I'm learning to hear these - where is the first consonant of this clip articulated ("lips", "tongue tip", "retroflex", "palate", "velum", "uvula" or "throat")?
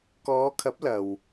velum